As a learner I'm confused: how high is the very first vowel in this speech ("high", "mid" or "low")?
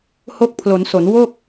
mid